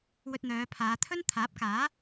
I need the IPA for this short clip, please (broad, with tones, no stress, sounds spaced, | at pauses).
w ɵ˧ t̚ n̪ œː˨˧ pʰ aː˨˧ t̪ʰ ɵ˥ n t̪ʰ aː˨˥ p̚ k aː˨˥